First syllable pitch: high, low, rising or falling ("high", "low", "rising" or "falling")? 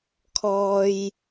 low